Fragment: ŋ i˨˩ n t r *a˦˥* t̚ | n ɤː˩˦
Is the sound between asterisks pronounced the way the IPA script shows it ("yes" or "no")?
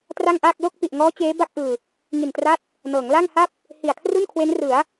yes